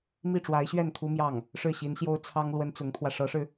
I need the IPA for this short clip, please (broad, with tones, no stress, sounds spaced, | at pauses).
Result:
m i˥˩ ʈ͡ʂ w a˧˥ ɪ̯ ɕ ɥ ɛ˥˩ n kʰ u˥ m j ɑ˥˩ ŋ | ʂ ɻ̩˥˩ ɕ i˧˥ n ɕ j o˥ ʊ̯ t͡sʰ ɑ˥ ŋ l w ə˥ n t͡s ʊ˧˥ ŋ t̪ʰ w ä˧ ʂ ɤ˧˥ ʂ ɻ̩˧